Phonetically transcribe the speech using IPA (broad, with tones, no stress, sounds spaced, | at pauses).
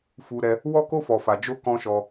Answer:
f u˧ ɾ ɛ˧ | w ɔ˦ k o˦ f ɔ˧ f a˧ d͡ʒ o˦ k ɔ̃˦ ʃ ɔ˧